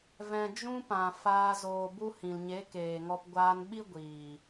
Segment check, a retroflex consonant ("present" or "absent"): absent